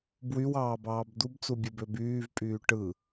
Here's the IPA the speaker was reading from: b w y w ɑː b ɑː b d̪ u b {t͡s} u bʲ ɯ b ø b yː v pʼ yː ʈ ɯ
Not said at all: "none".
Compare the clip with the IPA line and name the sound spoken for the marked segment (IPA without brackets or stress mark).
t͡s